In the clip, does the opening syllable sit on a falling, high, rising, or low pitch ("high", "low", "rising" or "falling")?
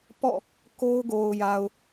falling